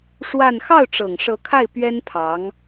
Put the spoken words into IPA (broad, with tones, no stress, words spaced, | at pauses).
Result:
ʂwa˥˧n xɑ˥˩ʊ̯ʈ͡ʂɤ˨˩ŋ ʂɤ˧˥kʰa˥˩ɪ̯ pɥɛ˥npʰɑ˧˥ŋ